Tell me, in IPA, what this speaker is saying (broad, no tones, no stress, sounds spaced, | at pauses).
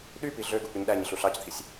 ɗ y p i ɮ ø ɡ u k͡p y ɲ ɗ æ ɲ i ɬ u ɬ ɑ c t̪ʰ i sʲ